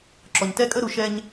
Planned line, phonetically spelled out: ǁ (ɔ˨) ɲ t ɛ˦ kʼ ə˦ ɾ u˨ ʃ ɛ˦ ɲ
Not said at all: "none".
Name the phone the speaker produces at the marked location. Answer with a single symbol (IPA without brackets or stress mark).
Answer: ɔ˨